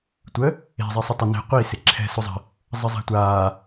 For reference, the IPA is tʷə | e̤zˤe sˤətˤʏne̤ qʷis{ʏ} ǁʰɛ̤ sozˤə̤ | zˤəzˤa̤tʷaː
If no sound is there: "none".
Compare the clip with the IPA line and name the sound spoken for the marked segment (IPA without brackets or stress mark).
ɪ